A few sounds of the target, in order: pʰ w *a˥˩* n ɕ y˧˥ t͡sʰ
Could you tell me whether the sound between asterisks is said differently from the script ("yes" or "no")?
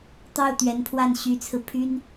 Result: no